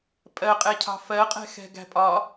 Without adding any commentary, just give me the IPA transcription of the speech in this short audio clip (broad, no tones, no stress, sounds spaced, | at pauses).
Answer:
pʼ ɜ qʼ ɛ cʰ ɑ̤ f ɜ qʼ ɛ̤ x ɛ̤ ɡ æ̤ pʼ ɒ